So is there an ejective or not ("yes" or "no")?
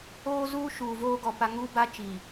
no